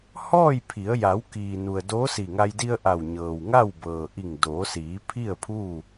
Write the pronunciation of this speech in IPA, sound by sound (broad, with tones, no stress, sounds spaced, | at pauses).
h ɔː˥˨ j pʰ i˩˧ ə̯ j a˩˧ w k iː˩ n u˩ ə̯ d oː˧˥ s i˧˩ ŋ a˧ j d i˧ ə̯ ʔ a˧˩ w ɲ ɤː˩ w ŋ a˥˨ w b ɤː˩ ʔ i˧˩ ŋ d oː˩˧ s iː˩˧ pʰ i˥˨ ə̯ pʰ u˥˨